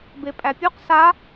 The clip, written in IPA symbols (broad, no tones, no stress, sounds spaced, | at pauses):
b e pʼ æ pʲ u q s a